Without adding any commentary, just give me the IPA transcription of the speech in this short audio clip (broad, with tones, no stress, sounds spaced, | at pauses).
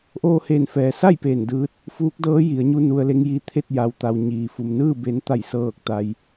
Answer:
ʔ oː˧ h eː˧˩ n f ɛː˩ s a˥˨ j p eː˧˩ n d ɯː˧ t̚ | f uː˧˥ k̚ d ɤː˧˥ j i˩˧ ə̯ ɲ u˧ n u˧ ə̯ l e˧˥ ŋ j i˧ t̪ʰ e˥˨ t̚ j a˩ w t̪ a˩ w ɲ iː˩ f u˩ m n ɯː˥˨ b e˩˧ n t̪ a˧˩ j s ɤː˧˩ k̚ t̪ a˩ j